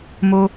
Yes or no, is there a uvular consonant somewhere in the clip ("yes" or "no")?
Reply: no